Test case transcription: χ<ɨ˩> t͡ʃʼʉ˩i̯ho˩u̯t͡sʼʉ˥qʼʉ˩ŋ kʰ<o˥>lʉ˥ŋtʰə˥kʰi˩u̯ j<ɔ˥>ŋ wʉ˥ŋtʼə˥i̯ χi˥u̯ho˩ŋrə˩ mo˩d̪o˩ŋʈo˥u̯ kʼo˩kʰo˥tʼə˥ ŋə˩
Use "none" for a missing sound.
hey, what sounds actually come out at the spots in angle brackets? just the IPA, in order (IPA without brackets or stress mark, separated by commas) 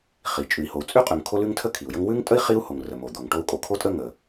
i˩, o˥, ə˥